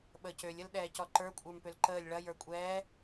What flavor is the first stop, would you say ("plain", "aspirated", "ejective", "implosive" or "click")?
implosive